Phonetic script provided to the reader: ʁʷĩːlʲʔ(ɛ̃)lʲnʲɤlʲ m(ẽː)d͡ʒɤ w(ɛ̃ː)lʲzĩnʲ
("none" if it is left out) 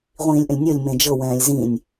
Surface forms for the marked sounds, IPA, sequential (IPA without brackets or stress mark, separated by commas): ə̃, ẽ, ɛ̃ː